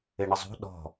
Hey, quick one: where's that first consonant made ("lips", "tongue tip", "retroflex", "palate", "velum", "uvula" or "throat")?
retroflex